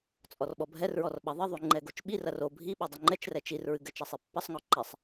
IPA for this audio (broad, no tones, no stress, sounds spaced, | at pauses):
t͡sʼ ɔ r ɓ ɔ bʱ ɛ r ɹ ɔ r ɓ ɐ ðˤ ɘ ðˤ u ŋ͡ǃ ɛ ɡ o t͡ʃ ɓ i r ɐ r o bʱ i ɓ o dˤ ɘ ŋ͡ǃ ɛ t͡ʃ r ɛ t͡ʃ i r ɹ ɨ ɡ ɘ t͡ʃ ɐ sˤ e pː ɐ sˤ ŋ ɔ ǃ ɛ sˤ